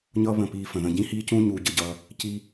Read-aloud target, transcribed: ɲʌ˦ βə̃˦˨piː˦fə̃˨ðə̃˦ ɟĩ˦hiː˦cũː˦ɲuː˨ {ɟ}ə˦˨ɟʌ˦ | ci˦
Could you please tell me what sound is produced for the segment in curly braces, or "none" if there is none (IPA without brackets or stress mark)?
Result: ɟ